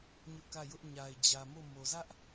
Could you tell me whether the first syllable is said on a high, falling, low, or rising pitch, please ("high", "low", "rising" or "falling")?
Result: high